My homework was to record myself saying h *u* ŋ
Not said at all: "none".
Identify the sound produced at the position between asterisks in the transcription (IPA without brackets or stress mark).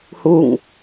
u